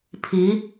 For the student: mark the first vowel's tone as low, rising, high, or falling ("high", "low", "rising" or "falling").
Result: rising